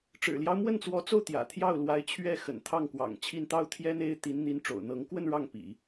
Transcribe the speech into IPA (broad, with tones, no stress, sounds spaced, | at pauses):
ʈ͡ʂ ɻ̩˨˩ l j ɑ˦ ʊ̯ m w ə˥˩ n t͡s w ɔ˧˥ t͡s o˥˩ ʊ̯ t̪ j ä̰˨˩ t̪ʰ j ɑ˥˩ ʊ̯ l w a˧˥ ɪ̯ t͡ɕʰ ɥ ɛ˥˩ x ə̰˨˩ n t̪ʰ ɑ˥˩ ŋ k w ɑ̰˨˩ ŋ t͡ɕʰ i˥˧ n t̪ ɑ˥˩ ʊ̯ t̪ʰ j ɛ˥ n̪ e˥ ɪ̯ t̪ i˧˥ n n̪ i˧˥ n ʈ͡ʂ o̰˨˩ ʊ̯ n̪ ɤ˧˥ ŋ k w ə˥˧ n ɻ ɑ˥˩ ŋ p ḭ˨˩˦